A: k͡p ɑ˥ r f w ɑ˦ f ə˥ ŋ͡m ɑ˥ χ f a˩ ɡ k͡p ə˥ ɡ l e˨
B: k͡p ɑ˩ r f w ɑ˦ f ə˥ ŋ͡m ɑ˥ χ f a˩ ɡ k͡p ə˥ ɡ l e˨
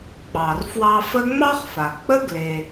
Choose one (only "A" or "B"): B